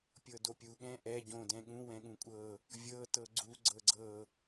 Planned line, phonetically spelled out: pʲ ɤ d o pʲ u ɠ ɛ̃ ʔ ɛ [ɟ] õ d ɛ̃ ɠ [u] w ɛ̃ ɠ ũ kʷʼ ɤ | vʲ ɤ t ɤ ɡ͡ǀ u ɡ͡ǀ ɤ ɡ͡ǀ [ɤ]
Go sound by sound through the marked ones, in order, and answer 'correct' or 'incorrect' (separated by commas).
correct, incorrect, correct